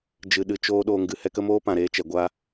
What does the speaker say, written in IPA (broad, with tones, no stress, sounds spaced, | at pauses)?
d͡ʒ ɨ˨ ɗ ɨ˨ t͡ʃ oː˧ ɗ oː˧ ŋ ɡ ɨ˨ h ɛ˦ k ə˦ m oː˦ p ã˨ ɾ eː˧ t͡ʃ ɛ˨ ɡʷ a˦